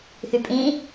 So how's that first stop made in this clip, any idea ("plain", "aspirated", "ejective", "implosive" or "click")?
ejective